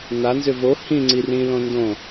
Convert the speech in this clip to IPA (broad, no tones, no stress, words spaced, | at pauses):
nanzʏ vo hĩ ŋ͡ǀirĩlõ ndõ